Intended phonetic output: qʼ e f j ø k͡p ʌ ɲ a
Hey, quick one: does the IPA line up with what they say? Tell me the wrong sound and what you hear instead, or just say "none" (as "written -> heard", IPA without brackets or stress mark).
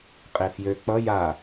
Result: ɲ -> j